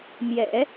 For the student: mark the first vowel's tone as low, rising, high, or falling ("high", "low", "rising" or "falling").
low